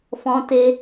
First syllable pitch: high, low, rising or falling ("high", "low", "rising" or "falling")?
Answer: high